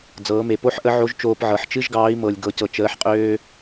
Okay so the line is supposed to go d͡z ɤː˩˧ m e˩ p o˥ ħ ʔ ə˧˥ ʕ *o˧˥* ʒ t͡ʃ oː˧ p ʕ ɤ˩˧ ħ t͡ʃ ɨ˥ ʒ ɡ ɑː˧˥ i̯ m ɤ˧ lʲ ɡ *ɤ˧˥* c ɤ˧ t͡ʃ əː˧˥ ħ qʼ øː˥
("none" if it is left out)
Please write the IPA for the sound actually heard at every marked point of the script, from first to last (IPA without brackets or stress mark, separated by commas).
o˧˥, ɤ˧˥